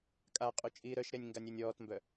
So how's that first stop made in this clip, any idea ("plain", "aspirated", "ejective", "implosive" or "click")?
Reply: ejective